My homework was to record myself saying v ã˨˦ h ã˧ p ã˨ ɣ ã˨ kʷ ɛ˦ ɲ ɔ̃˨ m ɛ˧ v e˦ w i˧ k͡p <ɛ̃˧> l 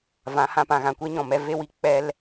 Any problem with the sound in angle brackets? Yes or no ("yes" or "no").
yes